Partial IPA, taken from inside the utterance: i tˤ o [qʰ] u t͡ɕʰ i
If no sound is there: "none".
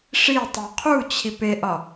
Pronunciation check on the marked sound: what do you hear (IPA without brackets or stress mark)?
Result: qʰ